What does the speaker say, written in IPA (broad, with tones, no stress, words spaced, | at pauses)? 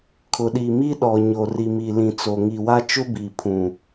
kʰʊ˨ɗi˨ mi˦ɗɔ˨ ɲo˨ri˨mi˨ lĩ˨t͡so˨ŋi˨wa˦ t͡ʃʊ˦bi˨pʰũ˨